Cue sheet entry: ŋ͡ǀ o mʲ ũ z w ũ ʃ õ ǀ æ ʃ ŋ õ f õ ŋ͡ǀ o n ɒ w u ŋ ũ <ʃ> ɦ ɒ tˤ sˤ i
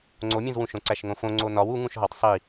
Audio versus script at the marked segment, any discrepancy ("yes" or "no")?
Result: no